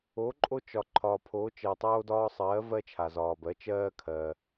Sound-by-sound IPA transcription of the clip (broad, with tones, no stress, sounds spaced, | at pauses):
o˩˥ ǃʼ o˦ t͡ʃ ɒ˩ ǃʰ ɒː˩ pʰ oː˩˥ t͡ʃ ɜ˩ tˤ oː˦ d ɒː˦ sˤ ɜː˩˥ v ɜ˦ t͡ʃʰ a˩ z ɒː˩ b ɜ˩˥ t͡ʃ ɜː˦ kʰ ɜː˩